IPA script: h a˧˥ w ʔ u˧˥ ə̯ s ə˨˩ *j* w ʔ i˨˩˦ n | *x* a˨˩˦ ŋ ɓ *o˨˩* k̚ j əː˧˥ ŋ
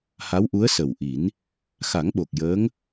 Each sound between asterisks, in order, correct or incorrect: incorrect, correct, correct

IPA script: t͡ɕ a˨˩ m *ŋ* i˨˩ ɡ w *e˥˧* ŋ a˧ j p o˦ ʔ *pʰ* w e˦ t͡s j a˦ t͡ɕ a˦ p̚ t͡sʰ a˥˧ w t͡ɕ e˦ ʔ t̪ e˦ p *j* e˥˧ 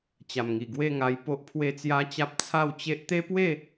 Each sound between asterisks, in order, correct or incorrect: correct, correct, correct, incorrect

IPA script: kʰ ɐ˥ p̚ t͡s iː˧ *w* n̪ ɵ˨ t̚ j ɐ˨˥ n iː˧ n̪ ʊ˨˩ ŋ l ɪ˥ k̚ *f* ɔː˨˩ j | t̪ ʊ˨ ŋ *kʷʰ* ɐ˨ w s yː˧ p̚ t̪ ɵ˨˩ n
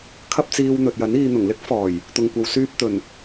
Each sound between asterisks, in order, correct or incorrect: correct, correct, incorrect

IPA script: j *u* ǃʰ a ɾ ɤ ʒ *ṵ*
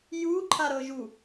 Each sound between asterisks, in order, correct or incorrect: correct, incorrect

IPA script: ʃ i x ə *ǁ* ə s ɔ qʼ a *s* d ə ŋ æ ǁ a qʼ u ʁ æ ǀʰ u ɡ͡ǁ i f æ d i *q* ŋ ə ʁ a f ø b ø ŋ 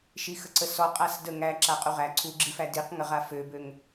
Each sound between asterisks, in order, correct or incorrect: incorrect, correct, correct

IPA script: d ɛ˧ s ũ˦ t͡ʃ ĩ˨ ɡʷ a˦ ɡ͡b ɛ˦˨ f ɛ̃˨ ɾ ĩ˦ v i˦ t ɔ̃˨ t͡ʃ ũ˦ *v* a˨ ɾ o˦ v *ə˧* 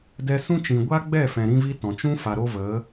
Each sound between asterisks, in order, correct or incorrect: incorrect, incorrect

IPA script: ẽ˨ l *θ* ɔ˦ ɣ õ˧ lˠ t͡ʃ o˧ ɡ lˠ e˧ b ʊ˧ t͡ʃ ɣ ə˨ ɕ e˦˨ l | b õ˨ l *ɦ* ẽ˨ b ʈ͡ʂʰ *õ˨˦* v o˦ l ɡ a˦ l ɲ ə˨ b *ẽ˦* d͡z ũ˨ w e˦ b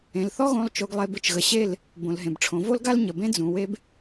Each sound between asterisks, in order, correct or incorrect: correct, correct, correct, correct

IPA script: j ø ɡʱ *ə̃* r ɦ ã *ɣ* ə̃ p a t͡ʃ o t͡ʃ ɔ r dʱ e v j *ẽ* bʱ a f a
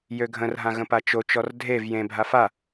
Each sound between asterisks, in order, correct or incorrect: correct, correct, correct

